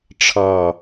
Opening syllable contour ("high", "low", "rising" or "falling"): low